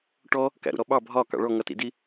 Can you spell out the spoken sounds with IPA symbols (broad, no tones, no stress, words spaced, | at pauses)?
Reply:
ʈɔ | kæ̰ɾṵɾɔɓɑ bʱɒ kɑ̰ɭɔ ŋʌtḭdi